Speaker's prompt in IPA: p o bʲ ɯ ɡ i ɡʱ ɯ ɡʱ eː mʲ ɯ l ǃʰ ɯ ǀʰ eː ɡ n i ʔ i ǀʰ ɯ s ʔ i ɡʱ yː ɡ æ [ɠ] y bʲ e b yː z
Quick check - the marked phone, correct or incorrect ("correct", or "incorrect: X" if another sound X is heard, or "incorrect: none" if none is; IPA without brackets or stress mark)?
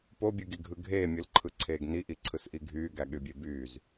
correct